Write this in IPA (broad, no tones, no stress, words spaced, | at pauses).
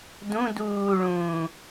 dũ duːɭũː